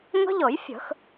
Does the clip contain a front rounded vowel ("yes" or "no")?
no